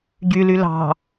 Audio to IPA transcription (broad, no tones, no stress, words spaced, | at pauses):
ɟyly lɑ̤